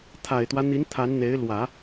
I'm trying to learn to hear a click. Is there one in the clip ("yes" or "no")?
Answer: no